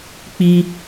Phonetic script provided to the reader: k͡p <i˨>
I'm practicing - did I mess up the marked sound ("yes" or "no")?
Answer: yes